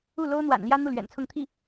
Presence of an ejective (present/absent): absent